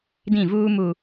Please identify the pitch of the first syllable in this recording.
falling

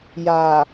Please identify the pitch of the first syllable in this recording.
low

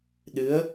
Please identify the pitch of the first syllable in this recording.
rising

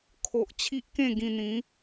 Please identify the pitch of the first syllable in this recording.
low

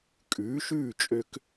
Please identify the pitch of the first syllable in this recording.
rising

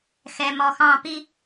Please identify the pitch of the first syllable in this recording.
low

